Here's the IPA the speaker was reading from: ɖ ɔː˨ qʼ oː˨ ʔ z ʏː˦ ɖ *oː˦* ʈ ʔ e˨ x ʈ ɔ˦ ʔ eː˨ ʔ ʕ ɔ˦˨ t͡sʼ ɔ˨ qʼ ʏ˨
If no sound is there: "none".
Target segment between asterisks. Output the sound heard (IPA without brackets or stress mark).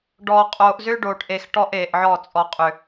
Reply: oː˨